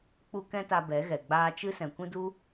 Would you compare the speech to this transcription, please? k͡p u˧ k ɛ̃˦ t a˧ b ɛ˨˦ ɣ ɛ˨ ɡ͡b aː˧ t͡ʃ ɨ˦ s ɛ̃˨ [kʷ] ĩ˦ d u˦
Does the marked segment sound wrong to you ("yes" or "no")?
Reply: no